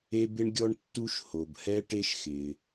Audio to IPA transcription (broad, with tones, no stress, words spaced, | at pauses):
e˦bɪ˦ɳɡʲɔ˦ɳtːu˦ʃ ho˨bhɛ˦ ʈe˦ʃxɪː˨